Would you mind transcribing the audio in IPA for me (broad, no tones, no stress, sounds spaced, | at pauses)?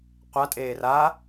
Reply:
qʷ a tʼ eː r a